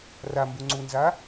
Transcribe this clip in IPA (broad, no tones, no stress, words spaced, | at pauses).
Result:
rambu ŋ͡ǀunza